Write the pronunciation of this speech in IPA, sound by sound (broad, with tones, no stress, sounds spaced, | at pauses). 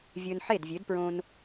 vʲ ɵː˧ n ħ e˥˩ d vʲ ø˩˥ d p ɹ õ˧ n